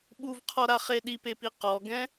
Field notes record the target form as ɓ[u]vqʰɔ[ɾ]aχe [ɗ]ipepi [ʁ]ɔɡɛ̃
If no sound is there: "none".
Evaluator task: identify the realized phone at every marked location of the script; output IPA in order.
u, ɾ, ɗ, q

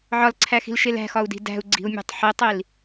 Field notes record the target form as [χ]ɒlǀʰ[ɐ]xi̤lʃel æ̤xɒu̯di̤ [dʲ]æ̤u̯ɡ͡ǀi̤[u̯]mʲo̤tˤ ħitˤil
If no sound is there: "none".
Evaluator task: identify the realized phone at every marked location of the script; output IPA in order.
ʕ, æ, d, u̯

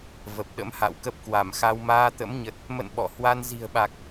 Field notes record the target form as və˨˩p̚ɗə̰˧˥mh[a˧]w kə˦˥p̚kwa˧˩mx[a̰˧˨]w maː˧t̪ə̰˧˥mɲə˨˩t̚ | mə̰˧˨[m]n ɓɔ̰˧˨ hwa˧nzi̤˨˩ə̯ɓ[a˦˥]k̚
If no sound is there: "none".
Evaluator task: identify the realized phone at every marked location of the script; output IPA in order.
a̰˧˨, a˧, none, a˨˩

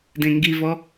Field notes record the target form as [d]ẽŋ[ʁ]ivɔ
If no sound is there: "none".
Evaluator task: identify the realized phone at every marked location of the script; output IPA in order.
d, ɡ

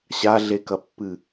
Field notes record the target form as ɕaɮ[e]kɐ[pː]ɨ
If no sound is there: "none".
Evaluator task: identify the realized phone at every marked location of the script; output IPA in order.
e, pː

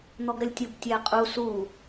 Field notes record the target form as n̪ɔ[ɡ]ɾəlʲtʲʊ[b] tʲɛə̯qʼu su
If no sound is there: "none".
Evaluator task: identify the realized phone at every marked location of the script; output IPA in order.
ɡ, b

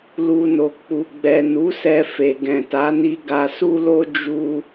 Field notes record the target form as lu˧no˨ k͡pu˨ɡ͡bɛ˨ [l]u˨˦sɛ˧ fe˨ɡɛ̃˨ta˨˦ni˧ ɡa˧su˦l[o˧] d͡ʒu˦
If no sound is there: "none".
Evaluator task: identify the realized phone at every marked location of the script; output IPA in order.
n, o˦

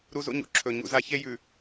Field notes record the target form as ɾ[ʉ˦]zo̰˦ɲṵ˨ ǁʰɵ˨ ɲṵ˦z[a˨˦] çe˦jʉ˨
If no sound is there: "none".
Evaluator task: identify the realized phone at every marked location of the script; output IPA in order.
u˦, a˦

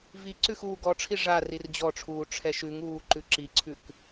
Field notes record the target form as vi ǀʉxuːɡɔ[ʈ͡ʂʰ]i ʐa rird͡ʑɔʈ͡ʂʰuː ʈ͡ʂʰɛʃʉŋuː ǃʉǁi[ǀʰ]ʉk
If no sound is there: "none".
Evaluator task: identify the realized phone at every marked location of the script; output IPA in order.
ʈ͡ʂʰ, ǀʰ

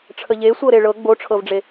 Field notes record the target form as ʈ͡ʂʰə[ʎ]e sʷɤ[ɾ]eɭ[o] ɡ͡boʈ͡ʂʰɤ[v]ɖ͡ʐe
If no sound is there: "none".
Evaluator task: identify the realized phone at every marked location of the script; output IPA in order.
ʎ, ɾ, ɤ, v

